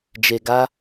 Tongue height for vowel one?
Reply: mid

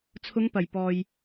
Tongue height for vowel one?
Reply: high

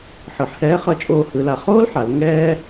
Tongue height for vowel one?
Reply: high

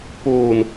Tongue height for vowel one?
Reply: mid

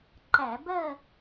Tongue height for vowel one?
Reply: low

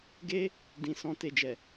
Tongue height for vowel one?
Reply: mid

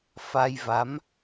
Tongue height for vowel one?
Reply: low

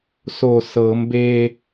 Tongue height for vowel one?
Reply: mid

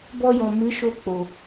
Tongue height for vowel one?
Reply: mid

